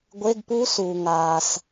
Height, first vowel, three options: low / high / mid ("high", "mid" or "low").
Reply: mid